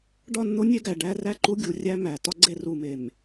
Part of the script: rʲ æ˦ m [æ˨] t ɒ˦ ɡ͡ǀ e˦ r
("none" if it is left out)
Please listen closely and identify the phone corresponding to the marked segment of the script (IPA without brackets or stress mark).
æ˨